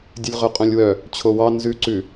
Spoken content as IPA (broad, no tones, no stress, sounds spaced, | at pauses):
dʲ ʉ lʲ ʁ œ qʼ œ̃ lʲ w œ | t͡ɕʰ o w ɑ n z ʉ ǀ ʉ